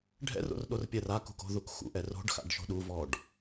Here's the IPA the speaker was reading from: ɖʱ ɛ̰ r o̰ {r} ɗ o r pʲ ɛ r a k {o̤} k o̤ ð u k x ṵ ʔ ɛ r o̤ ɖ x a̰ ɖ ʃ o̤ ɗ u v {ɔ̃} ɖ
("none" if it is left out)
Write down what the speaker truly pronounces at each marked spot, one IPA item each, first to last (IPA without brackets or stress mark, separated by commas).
r, ṳ, ɔ